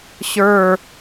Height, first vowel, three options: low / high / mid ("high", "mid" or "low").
mid